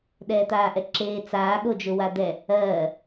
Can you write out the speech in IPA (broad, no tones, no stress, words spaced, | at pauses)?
ɗɛːt̪aːʔɛǁeː t͡saː ɠod͡ʒʊ wad̪ɛ | ɜː